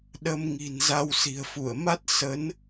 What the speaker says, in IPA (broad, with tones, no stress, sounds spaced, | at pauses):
ɗ ə˧ m ŋ i̤˨˩ n z a˧ w s i̤˨˩ ə̯ f u˧˩ ə̯ m a˦˥ t̚ s ə˨˦ n